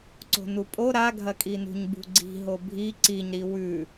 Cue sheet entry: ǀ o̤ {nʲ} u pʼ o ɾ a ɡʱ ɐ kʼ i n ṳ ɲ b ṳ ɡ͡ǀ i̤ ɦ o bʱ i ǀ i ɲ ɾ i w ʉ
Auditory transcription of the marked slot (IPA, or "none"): n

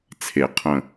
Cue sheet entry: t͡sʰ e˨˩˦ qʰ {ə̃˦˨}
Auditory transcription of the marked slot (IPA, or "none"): ə̃˨˩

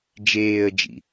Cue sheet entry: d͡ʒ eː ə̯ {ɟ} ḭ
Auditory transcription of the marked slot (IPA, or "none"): d͡ʒ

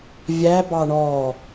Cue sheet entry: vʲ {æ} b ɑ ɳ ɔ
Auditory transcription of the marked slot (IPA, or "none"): æ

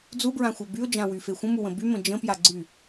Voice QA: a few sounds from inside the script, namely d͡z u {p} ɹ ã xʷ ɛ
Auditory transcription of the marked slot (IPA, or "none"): b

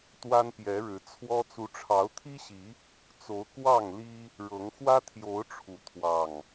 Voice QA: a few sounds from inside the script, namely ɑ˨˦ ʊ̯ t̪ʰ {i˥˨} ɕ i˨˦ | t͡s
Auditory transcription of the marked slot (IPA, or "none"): i˦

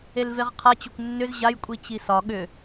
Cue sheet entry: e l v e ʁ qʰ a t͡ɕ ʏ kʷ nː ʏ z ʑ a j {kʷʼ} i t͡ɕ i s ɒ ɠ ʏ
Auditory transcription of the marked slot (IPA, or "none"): kʷʼ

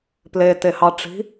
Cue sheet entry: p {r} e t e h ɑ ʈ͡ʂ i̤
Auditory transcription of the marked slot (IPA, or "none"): l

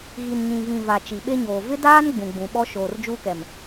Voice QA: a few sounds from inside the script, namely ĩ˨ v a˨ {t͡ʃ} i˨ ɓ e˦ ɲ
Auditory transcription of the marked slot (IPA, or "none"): t͡ʃ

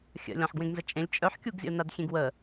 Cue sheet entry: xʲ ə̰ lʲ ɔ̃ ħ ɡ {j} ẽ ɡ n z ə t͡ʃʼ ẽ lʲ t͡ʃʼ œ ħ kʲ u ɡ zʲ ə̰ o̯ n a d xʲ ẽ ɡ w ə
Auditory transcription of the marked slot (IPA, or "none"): w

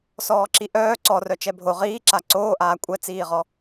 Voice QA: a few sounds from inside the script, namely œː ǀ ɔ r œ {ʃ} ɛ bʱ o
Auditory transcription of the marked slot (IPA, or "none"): t͡ʃ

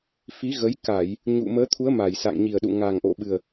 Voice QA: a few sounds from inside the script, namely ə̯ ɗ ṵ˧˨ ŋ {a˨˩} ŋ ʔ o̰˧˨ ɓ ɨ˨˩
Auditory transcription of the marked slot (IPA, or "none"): a˨˩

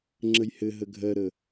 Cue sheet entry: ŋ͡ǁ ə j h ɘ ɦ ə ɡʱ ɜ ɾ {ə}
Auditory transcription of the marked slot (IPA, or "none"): ə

